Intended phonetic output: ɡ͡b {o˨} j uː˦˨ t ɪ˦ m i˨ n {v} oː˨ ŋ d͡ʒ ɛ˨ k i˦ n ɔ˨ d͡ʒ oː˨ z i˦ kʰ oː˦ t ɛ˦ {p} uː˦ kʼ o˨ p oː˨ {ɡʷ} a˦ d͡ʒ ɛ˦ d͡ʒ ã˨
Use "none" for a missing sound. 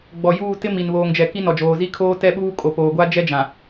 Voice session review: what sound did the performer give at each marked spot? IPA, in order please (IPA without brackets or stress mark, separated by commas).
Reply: ɔ˨, β, ɓ, ɡʷ